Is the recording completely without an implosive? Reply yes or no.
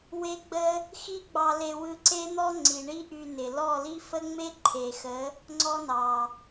yes